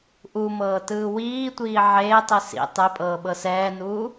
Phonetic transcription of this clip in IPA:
ʔumɤːtɯː wiːtʷiː ʕeːtˤi sḭ tˤepʼɤːɓɤ sɛːnuː

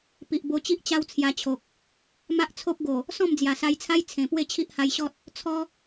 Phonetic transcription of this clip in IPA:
pi˨ʔbo˧t͡ɕi˦ʔ t͡ɕa˦wt͡sʰja˧t͡ɕʰo˨k̚ | ma˦ʔt͡sʰo˦p̚ ɡo˨˩ | sɔ̃˥˧md͡zja˨˩sa˧jt͡sʰa˦j t͡sʰẽ˨˩ pwe˥˧t͡ɕʰi˦ʔha˧jɕɔ˦t̚ | t͡sʰɔ˦

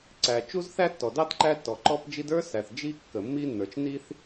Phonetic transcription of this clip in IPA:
ǀæ˩t͡ʃu˥z θæ˥tːɔ˩dɑ˥d ǃæ˥tːɔ˩ǃɔ˥pd͡ʒi˥d ə˞˥sæ˩θ d͡ʒi˥kːə˩ mːi˥nːə˞˩t͡ʃ ni˥θ

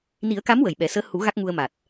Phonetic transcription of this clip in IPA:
ni˨˩˦ə̯ka˧˥m wə˨˩jɓɛ˨˩˦ səː˧˥hu˨˩˦ ɣa˦˥k̚ŋu˧ə̯ma˨˩t̚

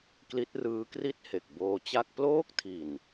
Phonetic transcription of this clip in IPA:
kli˦˥t̚rɯː˦˥kri˥˩t̚he˨˩k̚ boː˧t͡ɕa˥˩k̚ ploː˥˩k̚tʰi˨˩n

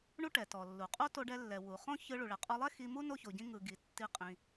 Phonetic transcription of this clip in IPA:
ɳu˥ʈɛ˩ tɔ˩lːu˩ qʼo˥to˧ɖɛ˧lːɛ˩ wu˩ χõ˥ çɯ˧ ɭu˩ɭɛ˩qʼɔ˧lˠɛ˥ xi˧mu˥ no˥ço˩ɟĩ˥ ŋɯ˩ ɡi˩ tːi˧qʼĩ˩

